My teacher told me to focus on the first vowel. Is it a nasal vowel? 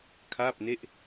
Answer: no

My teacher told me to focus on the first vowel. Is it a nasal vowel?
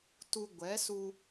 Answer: no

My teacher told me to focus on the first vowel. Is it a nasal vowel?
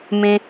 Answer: yes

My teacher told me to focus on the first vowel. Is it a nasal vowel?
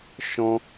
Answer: yes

